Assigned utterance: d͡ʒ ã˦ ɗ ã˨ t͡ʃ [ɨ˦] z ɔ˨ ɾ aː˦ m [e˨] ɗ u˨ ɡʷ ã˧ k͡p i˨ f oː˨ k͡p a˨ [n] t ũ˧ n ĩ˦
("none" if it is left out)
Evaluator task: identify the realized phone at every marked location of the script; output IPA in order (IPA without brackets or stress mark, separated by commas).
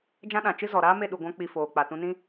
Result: ɨ˦, e˦˨, none